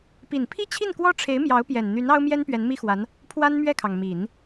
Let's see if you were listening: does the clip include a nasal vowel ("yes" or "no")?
no